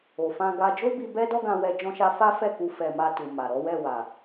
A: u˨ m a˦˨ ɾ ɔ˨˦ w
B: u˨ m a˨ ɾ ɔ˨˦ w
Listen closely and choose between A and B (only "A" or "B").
B